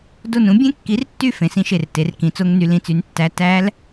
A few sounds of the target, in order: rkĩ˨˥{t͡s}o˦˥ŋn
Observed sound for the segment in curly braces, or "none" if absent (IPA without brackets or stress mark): t͡s